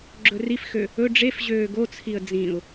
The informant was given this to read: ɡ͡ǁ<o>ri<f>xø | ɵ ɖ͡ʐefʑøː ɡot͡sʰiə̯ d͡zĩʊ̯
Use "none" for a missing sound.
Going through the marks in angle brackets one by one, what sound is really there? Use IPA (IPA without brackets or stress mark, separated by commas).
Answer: ɵ, f